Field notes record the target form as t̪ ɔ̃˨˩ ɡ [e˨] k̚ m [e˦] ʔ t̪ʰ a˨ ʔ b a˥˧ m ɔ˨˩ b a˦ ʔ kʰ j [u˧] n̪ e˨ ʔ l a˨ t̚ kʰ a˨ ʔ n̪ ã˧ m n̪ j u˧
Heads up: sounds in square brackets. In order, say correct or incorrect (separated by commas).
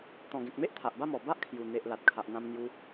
incorrect, correct, incorrect